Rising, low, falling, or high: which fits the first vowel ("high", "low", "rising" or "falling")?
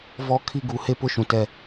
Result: high